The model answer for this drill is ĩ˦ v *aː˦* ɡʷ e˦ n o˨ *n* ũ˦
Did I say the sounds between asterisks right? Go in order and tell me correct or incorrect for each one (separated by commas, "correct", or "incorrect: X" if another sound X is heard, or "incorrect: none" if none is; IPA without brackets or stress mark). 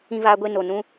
correct, correct